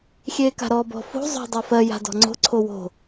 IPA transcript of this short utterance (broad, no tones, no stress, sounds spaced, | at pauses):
xʲ eː k a̤ ɾ ɔː b ɔ̤ f o̤ zˤ o̤ dˤ ɜ f ɜ j a̤ d ɔ̤ ŋ͡ǀ o̤ ǀʰ o w o̤